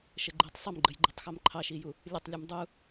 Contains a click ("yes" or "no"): yes